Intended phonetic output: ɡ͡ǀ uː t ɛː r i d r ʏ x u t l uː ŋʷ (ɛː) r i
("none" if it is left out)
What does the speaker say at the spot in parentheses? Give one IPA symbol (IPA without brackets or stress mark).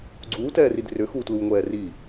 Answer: ɛː